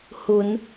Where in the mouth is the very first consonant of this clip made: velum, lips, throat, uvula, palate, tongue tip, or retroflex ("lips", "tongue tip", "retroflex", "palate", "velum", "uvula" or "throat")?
throat